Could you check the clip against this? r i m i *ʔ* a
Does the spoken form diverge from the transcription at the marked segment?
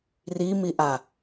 no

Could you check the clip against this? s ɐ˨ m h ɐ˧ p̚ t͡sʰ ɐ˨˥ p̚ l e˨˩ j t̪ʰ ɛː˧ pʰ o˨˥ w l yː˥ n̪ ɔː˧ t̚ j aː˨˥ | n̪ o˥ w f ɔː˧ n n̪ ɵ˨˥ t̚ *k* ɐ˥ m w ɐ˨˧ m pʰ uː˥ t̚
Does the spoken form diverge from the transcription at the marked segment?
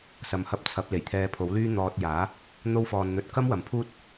no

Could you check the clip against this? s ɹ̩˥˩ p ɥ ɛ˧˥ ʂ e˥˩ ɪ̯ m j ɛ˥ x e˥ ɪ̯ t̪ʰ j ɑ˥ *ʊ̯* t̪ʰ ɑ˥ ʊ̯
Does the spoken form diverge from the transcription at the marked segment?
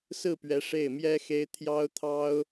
no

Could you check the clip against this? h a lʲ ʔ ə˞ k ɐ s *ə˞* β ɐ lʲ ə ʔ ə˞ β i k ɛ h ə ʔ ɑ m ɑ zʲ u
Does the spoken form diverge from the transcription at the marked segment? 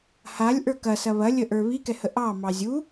yes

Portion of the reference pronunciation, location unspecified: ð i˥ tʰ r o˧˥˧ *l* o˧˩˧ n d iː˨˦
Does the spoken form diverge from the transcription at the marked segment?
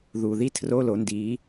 no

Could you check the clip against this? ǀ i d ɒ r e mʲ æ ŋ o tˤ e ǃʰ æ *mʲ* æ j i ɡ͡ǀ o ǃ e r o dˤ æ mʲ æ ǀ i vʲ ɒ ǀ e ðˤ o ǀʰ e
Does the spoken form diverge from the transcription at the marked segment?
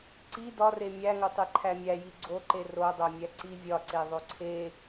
no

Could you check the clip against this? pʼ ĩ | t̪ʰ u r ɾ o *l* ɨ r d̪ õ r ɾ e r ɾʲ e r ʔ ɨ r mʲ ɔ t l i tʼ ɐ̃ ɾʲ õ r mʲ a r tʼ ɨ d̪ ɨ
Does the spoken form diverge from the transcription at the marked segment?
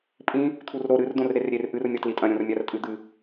yes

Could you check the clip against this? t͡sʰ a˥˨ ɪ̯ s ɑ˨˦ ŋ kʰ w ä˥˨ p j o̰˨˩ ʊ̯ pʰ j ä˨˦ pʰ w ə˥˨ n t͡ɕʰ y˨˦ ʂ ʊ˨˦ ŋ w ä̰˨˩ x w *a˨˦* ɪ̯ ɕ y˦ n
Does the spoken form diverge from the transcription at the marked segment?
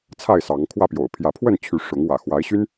no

